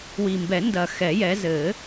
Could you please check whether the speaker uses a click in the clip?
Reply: no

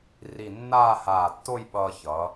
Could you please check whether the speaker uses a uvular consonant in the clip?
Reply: no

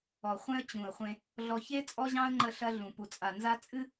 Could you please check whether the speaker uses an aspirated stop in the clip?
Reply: no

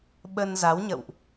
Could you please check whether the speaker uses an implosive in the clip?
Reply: yes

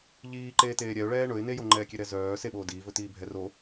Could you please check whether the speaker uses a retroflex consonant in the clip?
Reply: yes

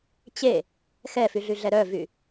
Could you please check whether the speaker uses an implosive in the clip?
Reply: no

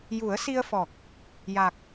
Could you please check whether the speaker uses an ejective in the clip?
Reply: no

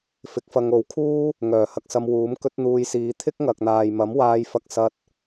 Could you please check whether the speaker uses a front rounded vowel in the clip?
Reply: yes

